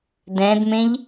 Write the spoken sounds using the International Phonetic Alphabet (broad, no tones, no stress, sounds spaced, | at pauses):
d ɛ̃ d m ẽ ʎ